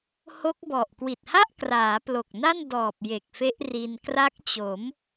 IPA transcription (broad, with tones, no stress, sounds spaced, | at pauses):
h o˦˥ k̚ b ɔ˨˩ ʔ k w i˨˩ t̚ h a˥˩ ʔ k r aː˩˦ p l o˨˩ k̚ n a˥˩ n d ɔː˨˩ p̚ j e˨˩ k̚ f e˦˥ ʔ r i˧ n k r a˦˥ k̚ t͡ɕ o˩˦ m